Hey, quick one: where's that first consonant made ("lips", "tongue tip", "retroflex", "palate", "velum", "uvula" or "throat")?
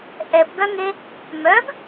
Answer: throat